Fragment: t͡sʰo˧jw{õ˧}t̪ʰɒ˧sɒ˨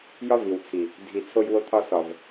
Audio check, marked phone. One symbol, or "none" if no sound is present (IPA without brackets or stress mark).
o˧